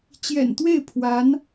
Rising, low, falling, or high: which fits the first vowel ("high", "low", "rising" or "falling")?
low